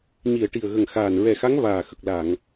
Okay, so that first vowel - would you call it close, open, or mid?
close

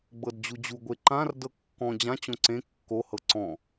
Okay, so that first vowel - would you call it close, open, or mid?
mid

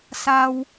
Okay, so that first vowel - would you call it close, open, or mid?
open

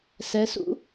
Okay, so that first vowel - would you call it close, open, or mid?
mid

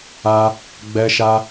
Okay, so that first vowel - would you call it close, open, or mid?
open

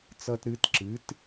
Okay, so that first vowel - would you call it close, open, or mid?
mid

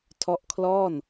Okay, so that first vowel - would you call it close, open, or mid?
mid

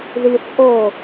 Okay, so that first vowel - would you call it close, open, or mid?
close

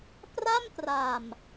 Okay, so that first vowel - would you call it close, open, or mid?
open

